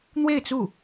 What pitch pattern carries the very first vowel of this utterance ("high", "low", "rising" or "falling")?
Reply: falling